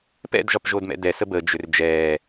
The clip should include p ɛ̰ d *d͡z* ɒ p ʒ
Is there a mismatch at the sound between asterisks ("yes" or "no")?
yes